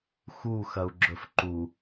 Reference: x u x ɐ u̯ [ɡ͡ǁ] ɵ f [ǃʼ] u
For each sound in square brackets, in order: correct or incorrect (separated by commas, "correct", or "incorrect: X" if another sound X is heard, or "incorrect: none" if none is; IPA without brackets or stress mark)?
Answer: correct, incorrect: ǃ